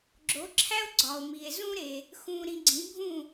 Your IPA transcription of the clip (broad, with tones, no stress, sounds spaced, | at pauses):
ɡ͡ǁ o˩˥ ǁʰ æ˥ o̯ ɡ͡ǀ ɒ˩ o̯ m i˩ e̯ z ũ˥ ɾ e˩ | x ũ˧ ɾ ĩ˧ ɡ͡ǀ ĩ˩˥ bʱ ũ˥˩